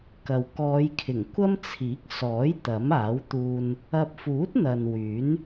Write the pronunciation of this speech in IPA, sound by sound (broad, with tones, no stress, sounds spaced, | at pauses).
k ɐ˨ w k ɔː˨˧ j kʰ ɪ˨˩ ŋ kʷ ɐ˥ m t͡sʰ iː˨˥ k̚ s ɔː˨˥ j t̪ ɐ˨˥ m aː˨˥ w t̪ uː˧ n | ɐ˧ p̚ f uː˨˥ t̚ n̪ ɐ˨ n w yː˨˥ n